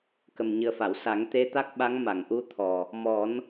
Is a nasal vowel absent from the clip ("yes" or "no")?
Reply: yes